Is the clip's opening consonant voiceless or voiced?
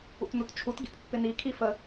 voiceless